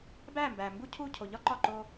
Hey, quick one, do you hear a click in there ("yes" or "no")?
yes